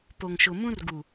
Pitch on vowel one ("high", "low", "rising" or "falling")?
low